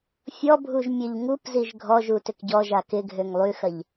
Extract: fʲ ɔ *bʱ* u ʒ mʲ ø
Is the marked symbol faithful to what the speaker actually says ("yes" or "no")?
yes